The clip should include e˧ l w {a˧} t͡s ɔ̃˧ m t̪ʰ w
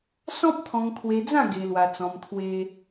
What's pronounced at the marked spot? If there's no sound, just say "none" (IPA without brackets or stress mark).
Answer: a˧